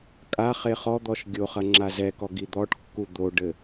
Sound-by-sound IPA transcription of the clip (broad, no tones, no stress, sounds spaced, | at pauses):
kʼ a χ e χ ɔ d̪ ɔ ʃ ɡʲ o χ ɐ ŋ͡ǁ a z ɛ k ɔ ɡ i d̪ ɔ ʈ kː u d̪ o ɖ ɘ